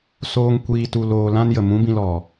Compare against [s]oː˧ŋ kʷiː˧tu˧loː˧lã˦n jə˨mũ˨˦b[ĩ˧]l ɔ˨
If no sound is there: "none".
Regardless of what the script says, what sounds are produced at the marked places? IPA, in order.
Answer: s, ĩ˧

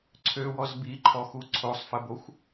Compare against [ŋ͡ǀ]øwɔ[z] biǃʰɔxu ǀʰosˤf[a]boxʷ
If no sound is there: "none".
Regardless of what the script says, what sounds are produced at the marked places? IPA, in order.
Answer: ǀʰ, z, ə

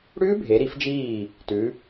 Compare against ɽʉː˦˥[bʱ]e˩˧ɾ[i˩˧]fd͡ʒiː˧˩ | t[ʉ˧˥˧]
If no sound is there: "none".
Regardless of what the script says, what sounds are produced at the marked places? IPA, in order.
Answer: bʱ, i˩˧, ʉ˩˧

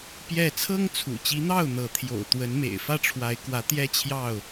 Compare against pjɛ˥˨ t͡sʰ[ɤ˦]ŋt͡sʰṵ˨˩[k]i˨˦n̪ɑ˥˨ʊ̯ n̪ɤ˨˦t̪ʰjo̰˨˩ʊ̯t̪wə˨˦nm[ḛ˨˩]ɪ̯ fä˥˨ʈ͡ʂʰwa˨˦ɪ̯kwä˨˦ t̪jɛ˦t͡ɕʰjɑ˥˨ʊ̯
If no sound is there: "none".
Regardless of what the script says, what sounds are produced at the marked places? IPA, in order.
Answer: ɤ˦, t͡ɕ, ḛ˨˩

